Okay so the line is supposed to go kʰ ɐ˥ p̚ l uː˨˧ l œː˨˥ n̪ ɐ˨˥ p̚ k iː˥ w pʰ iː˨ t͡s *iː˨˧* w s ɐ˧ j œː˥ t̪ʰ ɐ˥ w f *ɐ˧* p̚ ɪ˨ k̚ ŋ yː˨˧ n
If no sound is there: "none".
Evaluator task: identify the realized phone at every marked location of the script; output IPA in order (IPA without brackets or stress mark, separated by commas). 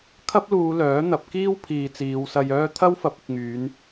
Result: iː˨˧, ɐ˨˥